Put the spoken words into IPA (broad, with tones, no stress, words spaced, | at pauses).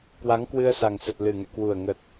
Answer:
kwa˨˦ŋkwɨ˧ə̯sa˨˩ŋsə˨˩t̚ lɨ˨˩ŋɛ̰˧˨kwu˨˩ə̯ŋə˨˩t̚